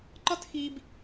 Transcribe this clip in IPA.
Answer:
ǃ ɒ˦ t x i˨ b

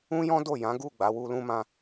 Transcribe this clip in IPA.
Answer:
ũ˦ j ɔ̃˦ d o˦˨ j ã˨˦ ɡ u˦˨ ɡ͡b a˨˦ w u˧ l ũ˦ m ã˦

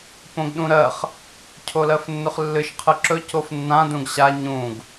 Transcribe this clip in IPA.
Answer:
p õ ɡ ɗ ũ ɾ ɜ χ | cʰ o l ɜ f nː ɵ χ lː ɨ ʃ qʰ ɨ ǁ ɵ c o f nː ã d ũ ɡ ɕ a ɲ ũ ɡ

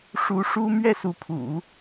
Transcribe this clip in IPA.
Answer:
ʂ u˧˥ ʂ u˥ m ɥ ɛ˥˩ s u˧˥ pʰ ṵ˨˩˦

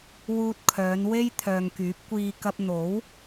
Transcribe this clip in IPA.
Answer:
w uː˧ t̚ kʰ œː˨˧ n w e˥ j t̪ʰ œː˨ ŋ k yː˨˥ p̚ kʷ iː˧ k ɐ˧ p̚ n̪ o˨˥ w

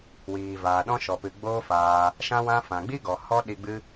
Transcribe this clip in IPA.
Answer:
w iː˨ v aː˨ ɗ ɔ̃˧ ʃ ɔ˨ p ɨ˨ ɡ͡b oː˦ f aː˧ | ʃ ã˧ w ã˧ f ã˨ ɡ͡b i˦ ɡ ɔ˨ h ɔ˦ ɗ i˧ ɡ͡b ɨ˦

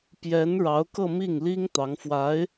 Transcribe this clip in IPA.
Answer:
p j ɛ˧˥ n ɻ ɑ˧˥ ʊ̯ k ɤ˥˧ m i˥˩ ŋ l i˥ ŋ t̪ ɑ˧˥ ŋ f w a˧˥ ɪ̯

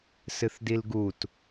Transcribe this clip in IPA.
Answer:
s ɨ θ d i l ɡ u t

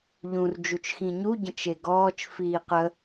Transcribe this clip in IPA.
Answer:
ʎ ũ r d͡ʒ u t͡ʃ x ĩ ɲ u ɟ ə̃ t͡ʃ e ɡ ɔː t͡ʃ f iː q ə

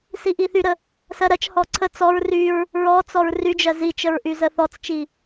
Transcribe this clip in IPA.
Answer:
s i ʔ i θ y ɾ ə | s ɜ ɾ ɜ t͡ʃ h ɔ ǀʰ ə t͡s ɔ ɹ r y ɹ | ɹ ɔ t͡s ɔ ɹ r y d͡ʒ ɜ z i t͡ʃ ə ɹ ʔ y z ə θ ɔ t͡s t͡ʃ i

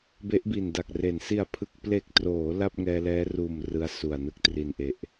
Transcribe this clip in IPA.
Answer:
b e˦˥ ʔ b i˨˩ n d a˨˩ k̚ r e˨˩ n s i˨˩ a̯ pʰ ɯ˨˩ k̚ p l e˨˩ k̚ t r oː˩˦ l a˥˩ p̚ ŋ ɛː˧ l ɛː˦˥ r uː˨˩ m r ɯ˦˥ a̯ s u˨˩ a̯ n ɯ˦˥ k̚ t r i˨˩ n ʔ e˨˩ ʔ

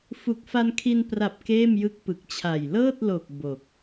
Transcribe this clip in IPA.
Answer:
f u˨˩ k̚ f a˧ n kʰ i˧ n p r a˨˩ p̚ k eː˥˩ m j ɯ˦˥ k̚ p ɯ˨˩ k̚ t͡ɕʰ a˨˩ j l ɤː˥˩ t̚ l o˨˩ k̚ b o˨˩ k̚

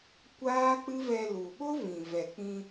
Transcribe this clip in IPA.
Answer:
kʷ aː˦ k͡p ɨ˦ v ɛ˧ l u˨ ɓ o˦ v ĩ˨ v ɛ˨ k͡p ĩ˧

